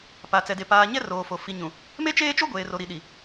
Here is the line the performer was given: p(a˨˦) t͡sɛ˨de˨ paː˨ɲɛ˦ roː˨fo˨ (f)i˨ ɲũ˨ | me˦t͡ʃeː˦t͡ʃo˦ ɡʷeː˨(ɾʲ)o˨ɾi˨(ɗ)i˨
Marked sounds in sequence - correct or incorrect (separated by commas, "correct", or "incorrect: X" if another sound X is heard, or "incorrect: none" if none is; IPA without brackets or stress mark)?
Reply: incorrect: a˨, correct, incorrect: r, correct